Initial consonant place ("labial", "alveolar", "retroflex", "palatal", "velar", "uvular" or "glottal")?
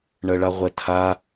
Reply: retroflex